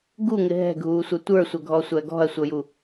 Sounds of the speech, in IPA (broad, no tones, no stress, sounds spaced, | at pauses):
ɡ u ŋ ɪ ɦ ɛ̤ ɡʱ uː sʷ ʌ tʷ ə˞ sʷ ʌ ɡʱ ɔ sʷ æ ɡ ɔ̤ ɐ̯ sʷ ʌ j u